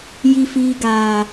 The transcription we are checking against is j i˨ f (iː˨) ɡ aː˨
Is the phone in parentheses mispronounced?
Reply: no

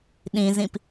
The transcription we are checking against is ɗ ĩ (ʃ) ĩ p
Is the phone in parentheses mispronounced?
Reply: yes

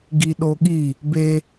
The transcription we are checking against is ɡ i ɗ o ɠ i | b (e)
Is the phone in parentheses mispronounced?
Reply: no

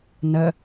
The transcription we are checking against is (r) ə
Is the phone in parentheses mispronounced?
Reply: yes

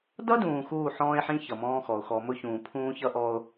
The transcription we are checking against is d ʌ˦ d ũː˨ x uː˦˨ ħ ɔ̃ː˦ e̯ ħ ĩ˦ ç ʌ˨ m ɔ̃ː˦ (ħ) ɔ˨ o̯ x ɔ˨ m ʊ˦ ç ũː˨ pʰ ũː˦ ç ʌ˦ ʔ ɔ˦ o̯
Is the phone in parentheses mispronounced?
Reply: yes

